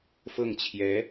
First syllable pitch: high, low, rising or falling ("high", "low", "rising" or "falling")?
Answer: falling